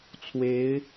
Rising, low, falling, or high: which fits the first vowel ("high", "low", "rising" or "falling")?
rising